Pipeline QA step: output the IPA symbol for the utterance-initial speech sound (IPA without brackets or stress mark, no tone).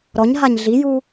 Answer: ɾ